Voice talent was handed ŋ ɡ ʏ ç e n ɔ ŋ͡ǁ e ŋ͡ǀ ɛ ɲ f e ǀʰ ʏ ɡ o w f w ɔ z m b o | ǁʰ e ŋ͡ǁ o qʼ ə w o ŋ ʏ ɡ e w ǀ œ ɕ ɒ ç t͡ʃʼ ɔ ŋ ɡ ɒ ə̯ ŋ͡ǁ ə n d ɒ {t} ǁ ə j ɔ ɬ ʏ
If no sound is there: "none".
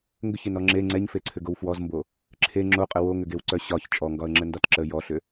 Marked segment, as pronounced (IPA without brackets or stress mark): t